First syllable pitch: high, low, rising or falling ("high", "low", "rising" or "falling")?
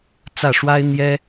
falling